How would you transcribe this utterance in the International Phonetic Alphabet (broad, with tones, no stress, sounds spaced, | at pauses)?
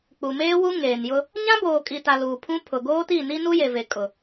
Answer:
k͡p u˨ m eː˦ w u˦ ŋ eː˨ n j ʊ˦ | ɲ ã˦ b oː˨ kʼ i˨ t a˨ l uː˨ pʰ ũ˦ pʰ ʊ˨ ɡ oː˦ t i˦˨ n i˦ n u˦ j e˨ v e˨ kʼ ʊ˨